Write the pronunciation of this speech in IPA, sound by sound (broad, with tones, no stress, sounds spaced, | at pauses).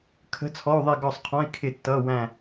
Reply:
kʰ ə̤˧˥˧ t͡sʰ ɔ˧˥˧ u̯ ðˤ i˦˨ ɡ ɔ˦˨ sˤ qʰ ɔ̃˧˥˧ i̯ kʰ ɪ˦˨ tː ʌ˧˥˧ w æ̃˦˨